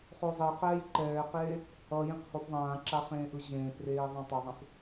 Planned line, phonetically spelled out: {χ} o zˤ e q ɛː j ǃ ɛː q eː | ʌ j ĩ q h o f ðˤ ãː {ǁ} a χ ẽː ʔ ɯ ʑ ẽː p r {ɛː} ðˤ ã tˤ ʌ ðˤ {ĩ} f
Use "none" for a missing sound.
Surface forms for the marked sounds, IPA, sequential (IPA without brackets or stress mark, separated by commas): χ, ǁ, eː, ẽ